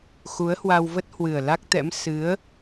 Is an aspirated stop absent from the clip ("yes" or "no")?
yes